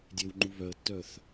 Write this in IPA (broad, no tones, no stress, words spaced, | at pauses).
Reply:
dʲewŋ͡ǃu βœə̯tːœθ